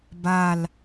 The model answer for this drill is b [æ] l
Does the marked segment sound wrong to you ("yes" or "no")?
yes